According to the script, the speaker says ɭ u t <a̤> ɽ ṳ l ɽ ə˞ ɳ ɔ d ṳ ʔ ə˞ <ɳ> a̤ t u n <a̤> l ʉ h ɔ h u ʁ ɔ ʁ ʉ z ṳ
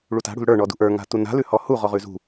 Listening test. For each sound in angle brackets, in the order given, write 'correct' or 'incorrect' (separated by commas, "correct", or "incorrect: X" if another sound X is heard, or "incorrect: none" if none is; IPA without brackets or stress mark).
correct, incorrect: ŋ, correct